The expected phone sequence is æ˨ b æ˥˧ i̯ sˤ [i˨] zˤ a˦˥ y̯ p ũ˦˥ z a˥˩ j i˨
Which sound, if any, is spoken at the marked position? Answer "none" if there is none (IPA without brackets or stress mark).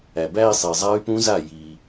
i˨